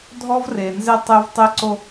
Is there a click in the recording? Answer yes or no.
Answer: yes